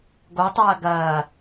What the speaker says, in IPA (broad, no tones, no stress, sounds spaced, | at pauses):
ɡ o tˤ ɐː ɡ ɐː